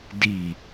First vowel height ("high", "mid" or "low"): high